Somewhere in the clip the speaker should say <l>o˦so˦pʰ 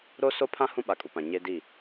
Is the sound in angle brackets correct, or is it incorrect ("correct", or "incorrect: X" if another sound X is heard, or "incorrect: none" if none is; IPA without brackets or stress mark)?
incorrect: ɾ